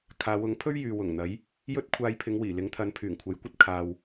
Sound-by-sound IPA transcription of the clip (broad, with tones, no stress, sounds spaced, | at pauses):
kʰ aː˨˧ w ʊ˨˥ ŋ pʰ ɵ˥ ɥ j yː˨ w ʊ˨˩ ŋ n̪ ɐ˨˥ j | j ɵ˥ t̚ kʷʰ aː˧ j pʰ ɪ˨˧ ŋ w iː˨˩ l ɪ˨˥ ŋ t̪ʰ ɐ˨˧ n pʰ yː˨˩ ŋ kʷʰ ɐ˨˥ j kʷ ɐ˧ t̚ kʰ aː˨ w